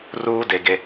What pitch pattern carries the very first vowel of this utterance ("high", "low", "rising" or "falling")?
high